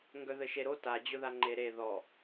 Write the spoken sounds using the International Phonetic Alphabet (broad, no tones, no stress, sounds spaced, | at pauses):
ŋ ɡ œ ð ɘ ʃ e ɾ o t a d͡ʑ ʊ ð a ŋ͡ǃ e ɾ e ð ɔ